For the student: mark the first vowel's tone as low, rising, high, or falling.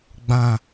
low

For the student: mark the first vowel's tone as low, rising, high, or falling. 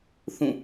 falling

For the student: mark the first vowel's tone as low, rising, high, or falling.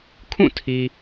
falling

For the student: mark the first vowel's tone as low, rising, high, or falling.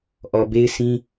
low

